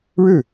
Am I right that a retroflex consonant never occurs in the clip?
no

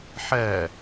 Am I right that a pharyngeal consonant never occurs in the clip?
no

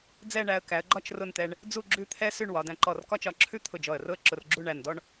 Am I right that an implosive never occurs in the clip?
yes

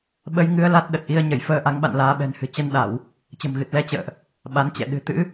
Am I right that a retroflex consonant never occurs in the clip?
yes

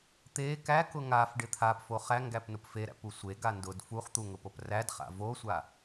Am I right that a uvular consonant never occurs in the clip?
no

